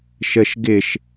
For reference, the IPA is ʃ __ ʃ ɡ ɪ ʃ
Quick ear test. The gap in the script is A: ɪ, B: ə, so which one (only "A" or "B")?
B